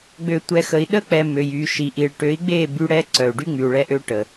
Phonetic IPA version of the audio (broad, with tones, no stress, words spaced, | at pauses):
ɡ͡bø˨tʷɛ˨xə˨i̯ ɗə˦k͡pɛ˨ mø˨jy˨ ʃi˨ʔi˨ɭ ʈø˨˦i̯ɡ͡be˦˨ by˦ ɽɛ˦ǀœ˨u̯ɖy˦ ŋ͡my˨u̯ɭɛ˦ʔø˦ ʈə˨